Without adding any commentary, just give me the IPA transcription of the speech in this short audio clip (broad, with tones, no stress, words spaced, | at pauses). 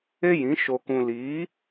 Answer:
e˦jĩ˨˦ ʃo˧kũ˧ liː˨˦